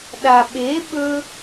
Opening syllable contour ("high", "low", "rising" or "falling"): low